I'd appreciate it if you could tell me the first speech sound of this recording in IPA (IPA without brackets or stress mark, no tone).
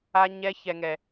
a